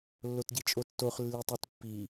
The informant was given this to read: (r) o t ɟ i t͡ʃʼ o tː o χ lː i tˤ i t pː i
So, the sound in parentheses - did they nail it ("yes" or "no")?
no